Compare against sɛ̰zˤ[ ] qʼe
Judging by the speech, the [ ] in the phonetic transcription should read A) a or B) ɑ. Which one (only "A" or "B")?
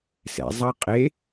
B